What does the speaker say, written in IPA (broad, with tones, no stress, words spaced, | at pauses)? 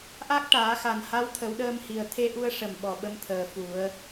ʔa˦˥k̚ʈaː˨˩˦xa˨˩nha˧˥w t̪ʰə˨˩˦wɗəː˧mhi˨˩ə̯ t̪ʰe˧ʔu˧ə̯ʂə˨˩m ɓɔ˨˩ɓə˧mt̪ʰəː˨˩ fu˨˩˦ə̯